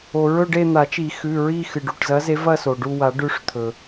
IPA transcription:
o˩ ɹ ɵ˦˨ ɖ e˦˨ n̪ a˨˩˦ t͡ʃ i˨˩˦ x ʉ˩˧˩ ɹ i˦˨ x ɨ˩ ɖ u˩˧˩ ʈ z ɐ˨˦ z e˨˦ v ɐ˦˨ s o˩ ɖ u˦˨ w a˨˩˦ ɖ ʉ˨˦ ʂ t̪ʰ ɵ˩

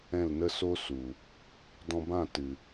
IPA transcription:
ɛ̃˦˨ l n ə˦ s o˦ s u˨ | d ɔ̃˧ b ã˦˨ t ɨ˨

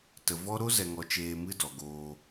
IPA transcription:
t ə˨ v ɔ˦ ɾ o˦ z ɛ˨ ŋ ɔ˨ t͡ʃ eː˧ m ɨ˦ d ɔ˨ ɡ oː˧

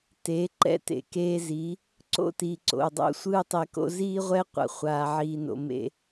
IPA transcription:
t e˨˦ ǃ ɛ̰˦ t ḛ˨ k eː˧ z i˨˦ | ǀ o̰˦ t iː˨ ǀ o̰˨ u̯ dˤ o̰˦ sʷ ɯː˦ tˤ e˧ k o̰˦ z iː˦ ʁʷ ɛ˦ qʷ a̰˧ χʷ aː˧ ʕ iː˧ n o̰˧ m ḛ˦

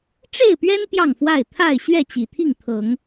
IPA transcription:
ʈ͡ʂ e˥˨ ɪ̯ p ɥ ɛ˦ n p j ɑ˥˨ ŋ f w a˥˨ ɪ̯ t̪ʰ a˥˨ ɪ̯ ɕ ɥ ɛ˥˨ t͡ɕ i˨˩ t̪ʰ i˥˨ ŋ t̪ʰ ɤ˨˦ ŋ

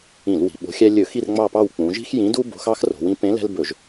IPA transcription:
ĩ˧˩˧ l w i̤˩˧ ɓ o̤˨˥ xʲ æ˦ lʲ ɵ˧˩˧ x i˦˨ r ŋ͡m ɑ˦˨ p ɑ˦˨ w k͡p ũ˩˧ ʒ i̤˦ x j ĩ˨˥ d u˦ b o̤˨˥ x ɑ˦ x r o̤˩˧ w ĩ˨˥ p ẽ˨˥ l ɛ̤˦ l b ɵ˧˩˧ ʒ

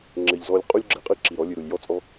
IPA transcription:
ŋ͡ǁ ɘ˨ ʎ z ɔ˧ lʲ qʼ u˦ lʲ ɡ͡ǁ ɘ˨ qʼ ɨ˦ ǁ i˨ ɾ ɔ˨˦ lʲ ɨ˨ ɾ u˨ lʲ j ɔ˦ t͡sʼ ɔ˦

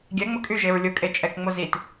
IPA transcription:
ɡʲ ɛ ŋ͡m ʊ kʼ y ʒ e ɹ lʲ ʊ kʼ e t͡ʃʼ ɛ k ŋ͡m o z i t

